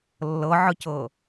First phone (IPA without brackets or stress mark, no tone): lː